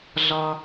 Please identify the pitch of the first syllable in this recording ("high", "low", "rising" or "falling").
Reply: low